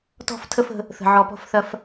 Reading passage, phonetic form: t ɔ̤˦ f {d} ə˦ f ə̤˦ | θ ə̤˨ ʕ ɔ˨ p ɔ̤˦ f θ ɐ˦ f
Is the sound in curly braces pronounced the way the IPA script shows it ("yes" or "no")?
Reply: no